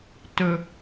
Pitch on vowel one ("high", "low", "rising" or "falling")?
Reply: low